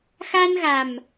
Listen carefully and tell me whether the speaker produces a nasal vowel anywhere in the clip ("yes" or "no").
no